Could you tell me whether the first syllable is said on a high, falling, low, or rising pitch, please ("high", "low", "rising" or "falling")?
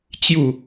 falling